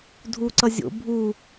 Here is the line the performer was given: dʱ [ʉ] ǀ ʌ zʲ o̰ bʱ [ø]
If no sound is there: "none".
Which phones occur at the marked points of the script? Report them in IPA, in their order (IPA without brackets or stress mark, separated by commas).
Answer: u, u